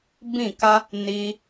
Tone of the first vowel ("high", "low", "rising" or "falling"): falling